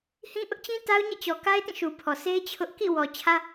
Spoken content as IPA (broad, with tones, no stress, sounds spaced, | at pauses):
h ĩ˦ ʔ ʊ˦ ʔ t͡ɕ ĩ˦ t a˦ ʊ̯ ɲ ɛ̰˦˨ t͡ɕ ɔ˨ k a˦ ɪ̯ t ĩ˦˨ ʃ u˨ pʰ ɔ˨ s e˦ ɪ̯ t͡ɕʰ ʊ˦ ʔ k ḭ˦˨ w ɔ˨ t͡ɕʰ ä˦